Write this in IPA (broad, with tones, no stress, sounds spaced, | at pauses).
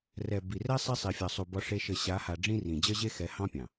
r ɛ˨ b i˨ r ɛ˦ sˤ e˦ sˤ i˨ fʲ ɑ˨ sˤ u˨ b ɒ˦ ʂ e˦ ʃ ə˦˨ ɕ a˨˦ h a˨ ɖ͡ʐ ĩ˦ r ĩ˨ d͡ʑ ə˦ ʑ e˦ x ɛ˨˦ h ɑ̃˦ pʲ ɑ̃˨